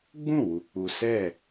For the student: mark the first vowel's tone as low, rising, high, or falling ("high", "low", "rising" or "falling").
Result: falling